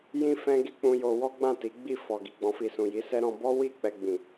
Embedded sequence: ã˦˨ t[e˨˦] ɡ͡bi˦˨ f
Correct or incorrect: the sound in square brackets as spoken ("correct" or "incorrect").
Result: incorrect